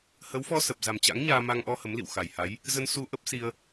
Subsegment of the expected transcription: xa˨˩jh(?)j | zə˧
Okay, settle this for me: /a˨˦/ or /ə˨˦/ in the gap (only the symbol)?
a˨˦